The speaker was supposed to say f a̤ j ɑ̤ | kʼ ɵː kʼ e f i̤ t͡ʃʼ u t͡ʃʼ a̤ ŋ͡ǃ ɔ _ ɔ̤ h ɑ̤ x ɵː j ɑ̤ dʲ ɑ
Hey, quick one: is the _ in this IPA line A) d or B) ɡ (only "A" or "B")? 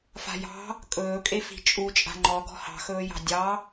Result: B